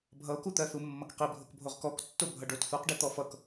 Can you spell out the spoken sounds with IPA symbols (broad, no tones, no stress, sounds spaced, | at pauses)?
bʱ ʌ o̯ k u t̪ ɜ θ u mː ʌ k q i bʱ o k bʱ o ʁ k ɔ k tː o bʱ ʌ ɖ o t θ u q ɖ i t̪ ɔ f ʌ k